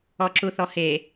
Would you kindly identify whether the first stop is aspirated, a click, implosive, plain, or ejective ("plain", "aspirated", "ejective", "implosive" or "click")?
click